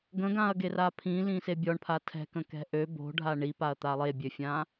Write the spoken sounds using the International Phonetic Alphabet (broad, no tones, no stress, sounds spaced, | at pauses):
ɡ ə̃ ɡ ã ɐ̯ ɡ e r a pʰ ĩ l ĩ s e bʲ ɔ ɳ pʰ a tʰ ɛ̤ k ə̃ k ɛ̤ ʔ ø b o̤ ɖʱ a ɳ i p a ɐ̯ t̪ a lˠ e bʲ ø fʲ ã